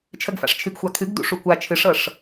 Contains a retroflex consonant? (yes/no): yes